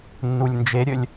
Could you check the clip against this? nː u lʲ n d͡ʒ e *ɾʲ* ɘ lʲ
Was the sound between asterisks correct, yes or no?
yes